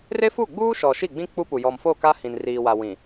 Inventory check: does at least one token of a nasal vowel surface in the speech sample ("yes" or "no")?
yes